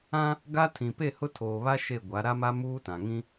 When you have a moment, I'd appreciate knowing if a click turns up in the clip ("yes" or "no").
no